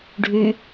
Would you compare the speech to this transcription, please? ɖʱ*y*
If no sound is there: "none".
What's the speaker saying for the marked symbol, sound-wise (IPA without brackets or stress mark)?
y